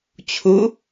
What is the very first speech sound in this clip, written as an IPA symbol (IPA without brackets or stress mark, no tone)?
t͡ɕʰ